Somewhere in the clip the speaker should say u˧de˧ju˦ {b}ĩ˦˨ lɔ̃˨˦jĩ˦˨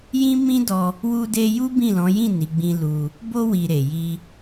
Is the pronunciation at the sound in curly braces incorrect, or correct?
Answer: correct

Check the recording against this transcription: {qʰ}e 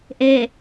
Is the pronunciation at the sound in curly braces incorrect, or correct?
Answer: incorrect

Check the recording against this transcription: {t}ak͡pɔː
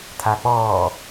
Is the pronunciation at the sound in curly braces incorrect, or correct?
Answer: incorrect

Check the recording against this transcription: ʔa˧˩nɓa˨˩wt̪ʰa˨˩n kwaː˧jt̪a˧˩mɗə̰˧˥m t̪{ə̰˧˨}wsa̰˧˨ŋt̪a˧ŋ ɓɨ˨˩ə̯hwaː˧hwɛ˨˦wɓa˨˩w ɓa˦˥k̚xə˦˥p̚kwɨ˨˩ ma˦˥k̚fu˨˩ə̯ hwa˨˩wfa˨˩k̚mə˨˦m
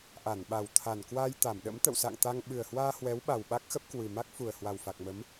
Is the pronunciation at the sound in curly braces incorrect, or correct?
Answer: correct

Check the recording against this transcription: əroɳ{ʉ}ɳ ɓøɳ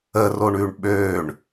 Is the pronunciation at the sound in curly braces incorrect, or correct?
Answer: correct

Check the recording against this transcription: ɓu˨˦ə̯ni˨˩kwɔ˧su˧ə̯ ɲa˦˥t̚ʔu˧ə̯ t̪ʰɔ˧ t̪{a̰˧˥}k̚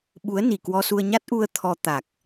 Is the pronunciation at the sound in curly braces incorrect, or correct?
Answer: incorrect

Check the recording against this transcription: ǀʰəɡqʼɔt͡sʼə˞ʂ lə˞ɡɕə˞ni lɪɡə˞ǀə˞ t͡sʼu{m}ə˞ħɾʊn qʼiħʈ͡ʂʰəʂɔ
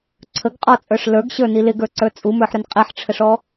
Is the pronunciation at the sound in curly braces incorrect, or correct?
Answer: correct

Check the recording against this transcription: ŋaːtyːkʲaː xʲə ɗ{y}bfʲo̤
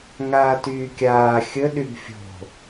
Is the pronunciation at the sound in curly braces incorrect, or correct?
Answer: correct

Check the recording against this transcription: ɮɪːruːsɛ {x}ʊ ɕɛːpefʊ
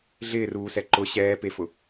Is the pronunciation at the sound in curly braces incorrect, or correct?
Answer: incorrect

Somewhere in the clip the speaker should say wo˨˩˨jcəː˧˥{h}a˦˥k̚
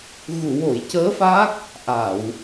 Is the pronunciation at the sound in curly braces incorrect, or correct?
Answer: incorrect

